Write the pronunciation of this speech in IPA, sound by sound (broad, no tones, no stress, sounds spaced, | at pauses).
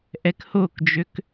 ʔ ɛ k h o k d͡ʒ ø k